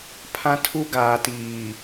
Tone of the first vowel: high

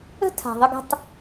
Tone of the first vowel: high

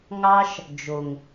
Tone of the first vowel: high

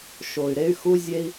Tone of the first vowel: low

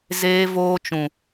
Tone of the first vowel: high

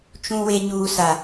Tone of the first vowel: high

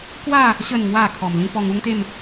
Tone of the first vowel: falling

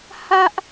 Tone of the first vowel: high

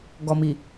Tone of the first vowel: low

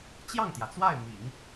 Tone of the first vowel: falling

